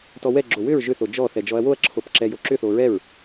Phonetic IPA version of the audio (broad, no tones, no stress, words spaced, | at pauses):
tɔwɛɡ͡ǁo wʏɹ ʒʏθo d͡ʒɔ θɛd͡ʒɔɐ̯woɐ̯ǁʰop ǁɛjoǁʏθo ɹɛɹ